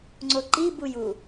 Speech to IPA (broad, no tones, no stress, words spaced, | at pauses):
ŋ͡ǀoǃi buju